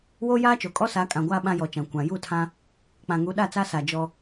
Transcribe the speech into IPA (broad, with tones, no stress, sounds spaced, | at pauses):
w oː˦ j aː˦ t͡ʃ o˨ kʼ ɔ˦ s a˨˦ kʼ ã˨ ɡʷ aː˦ ɓ ã˦ j ɔ˨ t͡ʃ ã˨ kʷ ã˨ j u˦˨ tʰ ã˦ | k͡p ã˨ ŋ u˨˦ ɗ a˦˨ t͡s a˦ s a˨ d͡ʒ ɔ˦